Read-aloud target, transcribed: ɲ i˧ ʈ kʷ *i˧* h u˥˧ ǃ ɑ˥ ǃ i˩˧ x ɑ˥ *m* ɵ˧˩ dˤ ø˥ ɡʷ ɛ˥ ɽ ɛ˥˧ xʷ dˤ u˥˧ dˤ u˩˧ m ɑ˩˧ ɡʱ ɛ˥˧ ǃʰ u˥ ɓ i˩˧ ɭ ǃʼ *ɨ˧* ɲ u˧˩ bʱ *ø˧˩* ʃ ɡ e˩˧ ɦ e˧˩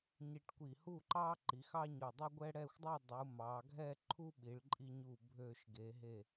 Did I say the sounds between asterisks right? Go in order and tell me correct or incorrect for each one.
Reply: incorrect, incorrect, incorrect, correct

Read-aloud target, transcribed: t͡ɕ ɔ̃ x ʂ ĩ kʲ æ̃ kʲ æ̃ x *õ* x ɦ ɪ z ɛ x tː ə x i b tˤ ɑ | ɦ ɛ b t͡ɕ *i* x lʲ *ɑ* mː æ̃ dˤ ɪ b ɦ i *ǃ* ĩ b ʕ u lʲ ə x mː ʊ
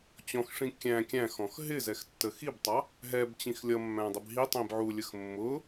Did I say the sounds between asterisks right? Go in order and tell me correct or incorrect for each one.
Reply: incorrect, incorrect, incorrect, incorrect

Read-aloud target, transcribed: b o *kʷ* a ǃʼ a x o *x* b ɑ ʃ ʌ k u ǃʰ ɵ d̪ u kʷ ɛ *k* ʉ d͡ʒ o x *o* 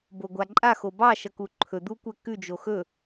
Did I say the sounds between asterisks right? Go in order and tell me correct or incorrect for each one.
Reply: incorrect, incorrect, correct, incorrect

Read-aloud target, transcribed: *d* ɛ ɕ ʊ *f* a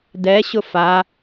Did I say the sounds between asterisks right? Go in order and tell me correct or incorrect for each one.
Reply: correct, correct

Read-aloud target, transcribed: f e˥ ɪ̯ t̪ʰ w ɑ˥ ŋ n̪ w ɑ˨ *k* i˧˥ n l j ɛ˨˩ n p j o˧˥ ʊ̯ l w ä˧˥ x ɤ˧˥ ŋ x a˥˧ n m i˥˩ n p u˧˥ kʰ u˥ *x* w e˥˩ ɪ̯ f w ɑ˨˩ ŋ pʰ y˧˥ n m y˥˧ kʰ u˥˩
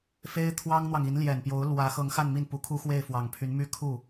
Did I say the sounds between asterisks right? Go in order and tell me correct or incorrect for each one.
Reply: incorrect, correct

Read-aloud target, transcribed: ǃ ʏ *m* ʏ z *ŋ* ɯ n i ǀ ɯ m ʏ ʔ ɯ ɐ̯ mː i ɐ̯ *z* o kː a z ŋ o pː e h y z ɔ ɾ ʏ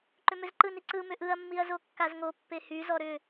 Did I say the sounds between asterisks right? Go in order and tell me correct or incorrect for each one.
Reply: correct, incorrect, correct

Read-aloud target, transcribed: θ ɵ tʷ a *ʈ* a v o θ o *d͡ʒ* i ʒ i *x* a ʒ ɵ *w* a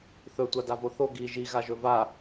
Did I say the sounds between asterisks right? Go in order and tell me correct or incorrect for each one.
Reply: incorrect, incorrect, incorrect, incorrect

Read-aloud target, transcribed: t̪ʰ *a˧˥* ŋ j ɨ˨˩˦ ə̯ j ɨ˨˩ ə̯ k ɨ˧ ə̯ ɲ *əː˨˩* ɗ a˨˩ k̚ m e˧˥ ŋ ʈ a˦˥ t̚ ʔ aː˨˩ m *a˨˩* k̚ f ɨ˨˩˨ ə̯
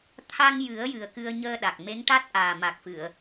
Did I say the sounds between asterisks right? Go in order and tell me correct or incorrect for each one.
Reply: incorrect, incorrect, correct

